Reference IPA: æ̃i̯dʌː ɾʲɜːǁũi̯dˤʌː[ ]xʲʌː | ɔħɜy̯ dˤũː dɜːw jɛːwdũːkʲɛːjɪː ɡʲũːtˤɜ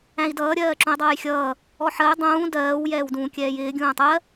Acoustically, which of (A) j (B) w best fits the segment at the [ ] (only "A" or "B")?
A